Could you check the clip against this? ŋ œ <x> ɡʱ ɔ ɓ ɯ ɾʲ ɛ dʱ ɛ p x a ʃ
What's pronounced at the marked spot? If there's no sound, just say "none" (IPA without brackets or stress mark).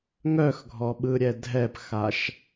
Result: x